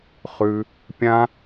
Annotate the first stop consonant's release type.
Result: plain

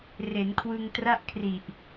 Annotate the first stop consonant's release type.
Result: aspirated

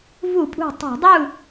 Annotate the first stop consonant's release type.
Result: ejective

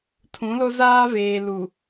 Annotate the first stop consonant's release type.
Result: aspirated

